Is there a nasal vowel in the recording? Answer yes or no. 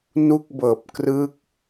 no